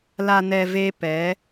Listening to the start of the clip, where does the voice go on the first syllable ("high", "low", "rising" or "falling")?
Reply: low